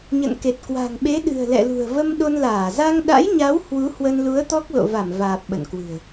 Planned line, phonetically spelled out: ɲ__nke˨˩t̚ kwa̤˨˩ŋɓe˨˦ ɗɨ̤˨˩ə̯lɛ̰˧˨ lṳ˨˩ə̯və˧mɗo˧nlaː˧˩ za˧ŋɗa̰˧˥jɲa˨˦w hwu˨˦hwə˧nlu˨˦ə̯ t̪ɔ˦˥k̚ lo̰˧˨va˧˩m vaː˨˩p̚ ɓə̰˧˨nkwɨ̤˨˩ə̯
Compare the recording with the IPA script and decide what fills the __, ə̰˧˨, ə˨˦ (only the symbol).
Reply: ə̰˧˨